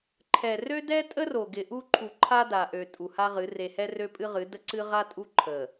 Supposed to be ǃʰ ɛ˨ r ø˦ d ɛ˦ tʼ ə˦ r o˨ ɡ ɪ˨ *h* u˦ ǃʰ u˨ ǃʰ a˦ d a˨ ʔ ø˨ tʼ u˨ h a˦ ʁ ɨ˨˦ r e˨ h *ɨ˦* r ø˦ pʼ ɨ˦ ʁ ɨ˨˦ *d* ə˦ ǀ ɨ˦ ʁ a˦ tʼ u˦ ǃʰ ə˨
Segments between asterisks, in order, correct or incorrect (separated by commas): incorrect, incorrect, correct